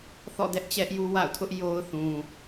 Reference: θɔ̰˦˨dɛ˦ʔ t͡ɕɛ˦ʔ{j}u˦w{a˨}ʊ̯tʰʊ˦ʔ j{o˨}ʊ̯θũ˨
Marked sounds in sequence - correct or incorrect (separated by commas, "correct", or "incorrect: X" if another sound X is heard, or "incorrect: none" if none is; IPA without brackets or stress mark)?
correct, incorrect: a̰˦˨, incorrect: o˦